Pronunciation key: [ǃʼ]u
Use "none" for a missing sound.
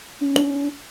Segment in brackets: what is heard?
ŋ͡ǃ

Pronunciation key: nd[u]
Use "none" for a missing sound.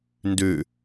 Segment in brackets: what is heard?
ʉ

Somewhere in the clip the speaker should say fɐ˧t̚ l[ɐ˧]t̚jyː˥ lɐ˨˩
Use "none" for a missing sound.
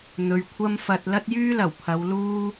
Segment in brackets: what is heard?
ɐ˥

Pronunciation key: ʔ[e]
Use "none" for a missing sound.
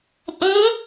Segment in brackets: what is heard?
i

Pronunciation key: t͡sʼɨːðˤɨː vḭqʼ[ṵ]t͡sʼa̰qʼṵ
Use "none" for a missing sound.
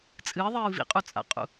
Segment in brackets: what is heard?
u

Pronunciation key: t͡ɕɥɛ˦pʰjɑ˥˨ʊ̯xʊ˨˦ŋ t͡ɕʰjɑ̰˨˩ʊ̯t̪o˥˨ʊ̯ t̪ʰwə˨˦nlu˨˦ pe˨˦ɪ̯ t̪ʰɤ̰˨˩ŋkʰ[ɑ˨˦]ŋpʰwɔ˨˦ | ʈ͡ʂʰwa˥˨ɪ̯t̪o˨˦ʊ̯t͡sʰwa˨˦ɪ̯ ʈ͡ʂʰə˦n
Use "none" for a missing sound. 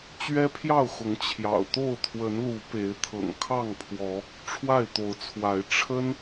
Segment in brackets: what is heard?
ɑ˥˨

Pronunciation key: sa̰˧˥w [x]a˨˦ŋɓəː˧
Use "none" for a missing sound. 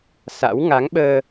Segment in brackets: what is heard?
ŋ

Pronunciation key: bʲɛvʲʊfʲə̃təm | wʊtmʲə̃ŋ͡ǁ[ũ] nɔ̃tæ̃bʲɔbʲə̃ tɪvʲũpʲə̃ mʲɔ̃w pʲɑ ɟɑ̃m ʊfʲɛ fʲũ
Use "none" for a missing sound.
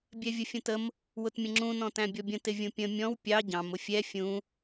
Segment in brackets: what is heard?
ũ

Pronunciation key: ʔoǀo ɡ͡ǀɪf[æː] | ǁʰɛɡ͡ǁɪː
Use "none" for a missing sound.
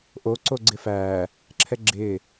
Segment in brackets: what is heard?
æː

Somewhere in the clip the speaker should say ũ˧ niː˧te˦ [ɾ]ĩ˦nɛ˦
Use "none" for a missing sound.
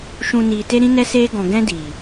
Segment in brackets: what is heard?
ɾ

